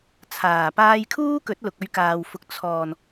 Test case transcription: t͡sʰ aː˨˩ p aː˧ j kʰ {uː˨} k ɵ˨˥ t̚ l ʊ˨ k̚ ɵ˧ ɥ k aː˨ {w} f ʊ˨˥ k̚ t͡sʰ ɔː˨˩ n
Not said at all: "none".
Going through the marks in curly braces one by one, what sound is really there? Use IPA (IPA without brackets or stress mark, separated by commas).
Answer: uː˥, w